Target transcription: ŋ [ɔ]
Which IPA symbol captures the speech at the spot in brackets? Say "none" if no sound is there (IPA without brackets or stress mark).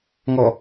ɔ